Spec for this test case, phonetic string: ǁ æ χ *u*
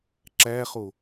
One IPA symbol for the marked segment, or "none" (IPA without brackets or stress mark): o